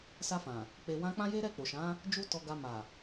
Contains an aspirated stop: no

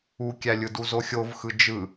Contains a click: no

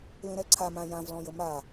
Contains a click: yes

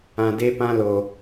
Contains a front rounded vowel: no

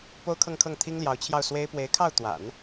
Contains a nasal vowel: no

